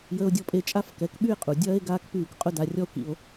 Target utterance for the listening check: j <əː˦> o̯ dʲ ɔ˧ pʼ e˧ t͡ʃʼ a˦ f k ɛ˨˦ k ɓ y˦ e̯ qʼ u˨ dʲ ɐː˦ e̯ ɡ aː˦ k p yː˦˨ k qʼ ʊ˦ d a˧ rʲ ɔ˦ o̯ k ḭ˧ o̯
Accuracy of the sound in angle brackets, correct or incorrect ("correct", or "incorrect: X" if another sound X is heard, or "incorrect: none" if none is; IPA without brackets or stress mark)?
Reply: incorrect: əː˧